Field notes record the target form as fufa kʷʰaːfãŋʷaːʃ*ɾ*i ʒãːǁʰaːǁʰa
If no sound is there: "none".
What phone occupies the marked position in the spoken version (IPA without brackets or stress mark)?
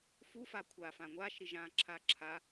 ɾ